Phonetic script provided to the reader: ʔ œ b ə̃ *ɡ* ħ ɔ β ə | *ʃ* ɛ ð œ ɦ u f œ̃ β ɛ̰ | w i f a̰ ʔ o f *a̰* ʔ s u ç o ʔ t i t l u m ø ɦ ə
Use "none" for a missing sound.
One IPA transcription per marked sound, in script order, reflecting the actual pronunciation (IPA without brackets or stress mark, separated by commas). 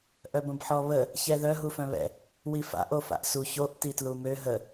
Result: b, ç, a̰